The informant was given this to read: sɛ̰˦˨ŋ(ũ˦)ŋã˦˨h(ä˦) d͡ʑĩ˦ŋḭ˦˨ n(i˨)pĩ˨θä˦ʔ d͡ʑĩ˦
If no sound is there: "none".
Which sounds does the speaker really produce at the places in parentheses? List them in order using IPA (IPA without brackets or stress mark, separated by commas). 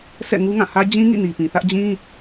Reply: u˦, ä˦, i˨